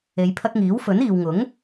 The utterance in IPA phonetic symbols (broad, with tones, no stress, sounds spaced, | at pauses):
e˨˧ j pʰ ɐ˧ k̚ ŋ iː˨˥ w f ɵ˨˥ n iː˨ w ŋ ʊ˨˥ ŋ